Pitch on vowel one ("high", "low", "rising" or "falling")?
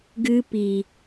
high